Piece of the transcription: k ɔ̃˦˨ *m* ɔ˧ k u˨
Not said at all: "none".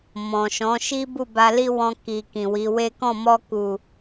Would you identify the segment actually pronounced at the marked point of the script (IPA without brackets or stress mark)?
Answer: m